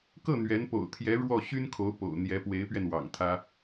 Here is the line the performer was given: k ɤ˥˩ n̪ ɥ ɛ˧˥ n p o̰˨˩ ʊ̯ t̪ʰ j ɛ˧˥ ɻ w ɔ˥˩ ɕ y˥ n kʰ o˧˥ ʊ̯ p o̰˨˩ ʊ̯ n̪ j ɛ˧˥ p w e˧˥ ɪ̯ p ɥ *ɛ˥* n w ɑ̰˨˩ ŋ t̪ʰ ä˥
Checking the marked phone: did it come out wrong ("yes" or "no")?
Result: yes